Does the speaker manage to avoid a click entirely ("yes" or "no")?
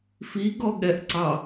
no